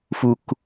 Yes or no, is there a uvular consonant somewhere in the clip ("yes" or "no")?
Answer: no